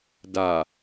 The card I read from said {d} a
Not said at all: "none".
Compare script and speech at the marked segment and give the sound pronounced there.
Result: d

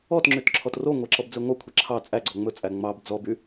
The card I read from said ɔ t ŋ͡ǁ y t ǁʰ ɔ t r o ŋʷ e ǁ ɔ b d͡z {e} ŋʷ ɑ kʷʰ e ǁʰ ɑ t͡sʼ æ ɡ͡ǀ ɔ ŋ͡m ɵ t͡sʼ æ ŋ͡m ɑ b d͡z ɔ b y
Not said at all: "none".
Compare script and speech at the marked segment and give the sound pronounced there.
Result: e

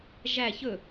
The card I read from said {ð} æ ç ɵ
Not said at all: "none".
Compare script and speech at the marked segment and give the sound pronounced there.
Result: ʒ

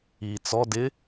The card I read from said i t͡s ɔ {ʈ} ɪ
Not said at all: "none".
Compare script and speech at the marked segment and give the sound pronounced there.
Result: d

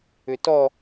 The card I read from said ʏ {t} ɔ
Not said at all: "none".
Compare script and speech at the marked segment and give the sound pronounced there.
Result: t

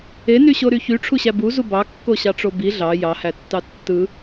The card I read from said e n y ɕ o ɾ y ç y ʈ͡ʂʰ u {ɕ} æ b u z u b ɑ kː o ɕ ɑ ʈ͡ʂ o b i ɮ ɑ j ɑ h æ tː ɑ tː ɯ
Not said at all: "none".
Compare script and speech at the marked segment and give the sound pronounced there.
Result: ɕ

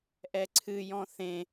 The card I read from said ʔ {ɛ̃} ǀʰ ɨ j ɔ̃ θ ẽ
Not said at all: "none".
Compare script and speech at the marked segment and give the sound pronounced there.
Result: ɛ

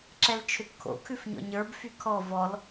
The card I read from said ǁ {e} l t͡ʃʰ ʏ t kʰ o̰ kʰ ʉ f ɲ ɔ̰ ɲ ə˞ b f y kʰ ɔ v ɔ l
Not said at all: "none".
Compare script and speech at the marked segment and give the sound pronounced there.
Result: ɛ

